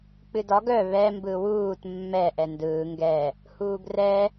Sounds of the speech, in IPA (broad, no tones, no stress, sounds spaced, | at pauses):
k͡p ɨ d ɒ ɡ œ β ɛ m b ɯ w uː t mː ɛ ʔ ɛ n d ɯː ŋ ɡ ɛ | h uː ɡ r ɛ